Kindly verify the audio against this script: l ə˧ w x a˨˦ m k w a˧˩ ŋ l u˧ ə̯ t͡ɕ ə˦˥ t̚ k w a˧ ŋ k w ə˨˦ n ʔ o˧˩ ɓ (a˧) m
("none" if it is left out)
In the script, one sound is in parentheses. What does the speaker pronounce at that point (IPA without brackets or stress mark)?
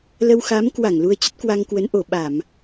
a˧˩˨